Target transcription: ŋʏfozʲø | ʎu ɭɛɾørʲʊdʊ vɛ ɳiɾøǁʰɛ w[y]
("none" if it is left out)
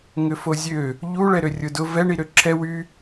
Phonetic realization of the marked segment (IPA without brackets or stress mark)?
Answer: y